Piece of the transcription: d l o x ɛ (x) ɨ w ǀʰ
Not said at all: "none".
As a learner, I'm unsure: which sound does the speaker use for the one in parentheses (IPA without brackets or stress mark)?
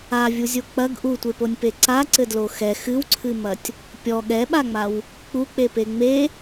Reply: x